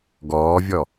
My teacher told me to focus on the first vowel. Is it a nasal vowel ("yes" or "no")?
no